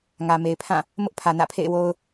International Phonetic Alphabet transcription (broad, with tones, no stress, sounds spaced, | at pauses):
ŋ ä˨ m e˨ ɪ̯ pʰ ã˦˨ | m ʊ˦ ʔ pʰ ä˨ n ä̰˦˨ pʰ ḛ˦˨ ɪ̯ w o˦ ʊ̯